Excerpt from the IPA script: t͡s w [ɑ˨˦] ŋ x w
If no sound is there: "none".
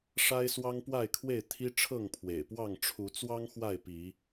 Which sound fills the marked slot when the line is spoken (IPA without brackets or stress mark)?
ɑ˦